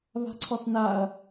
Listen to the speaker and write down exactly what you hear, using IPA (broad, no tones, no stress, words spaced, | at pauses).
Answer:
βa̤ǀʰɔθnaɐ̯